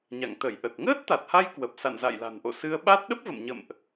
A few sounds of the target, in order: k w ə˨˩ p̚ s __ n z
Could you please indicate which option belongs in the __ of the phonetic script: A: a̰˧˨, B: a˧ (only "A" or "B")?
A